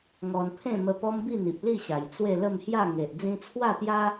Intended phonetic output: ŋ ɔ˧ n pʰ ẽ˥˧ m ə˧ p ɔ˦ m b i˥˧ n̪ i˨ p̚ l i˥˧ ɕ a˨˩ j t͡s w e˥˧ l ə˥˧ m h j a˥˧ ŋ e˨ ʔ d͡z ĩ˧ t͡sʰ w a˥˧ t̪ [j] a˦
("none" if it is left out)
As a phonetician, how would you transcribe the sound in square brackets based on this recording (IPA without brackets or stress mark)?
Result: j